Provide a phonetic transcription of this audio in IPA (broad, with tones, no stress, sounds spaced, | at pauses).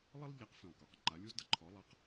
lˠ ə˥ lˠ ʎ a˩˥ q f ĩ˩ lˠ k ɔ˩ q ǃ a˩˥ lʲ u˥ z d ʌ˥ ǃʰ ɔ˩˥ lˠ ʌ˧ q